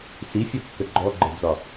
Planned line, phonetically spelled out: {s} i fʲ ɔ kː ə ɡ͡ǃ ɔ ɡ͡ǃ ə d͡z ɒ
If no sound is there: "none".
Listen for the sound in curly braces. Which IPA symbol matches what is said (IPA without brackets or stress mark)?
s